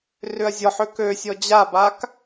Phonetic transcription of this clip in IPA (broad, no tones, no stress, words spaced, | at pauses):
rʏɐ̯zʲɔħø køsʲɔ d͡ʑabak